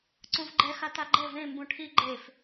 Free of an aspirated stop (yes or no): no